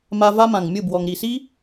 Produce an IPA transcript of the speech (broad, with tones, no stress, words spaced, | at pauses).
ma˧ va˦mã˨ŋ mʲɯ˦˨bwɔ˨ŋ ɾi˨si˦